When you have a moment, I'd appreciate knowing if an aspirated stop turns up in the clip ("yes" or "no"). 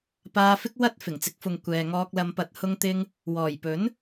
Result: no